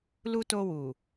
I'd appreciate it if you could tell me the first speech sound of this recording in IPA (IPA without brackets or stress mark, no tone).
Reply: l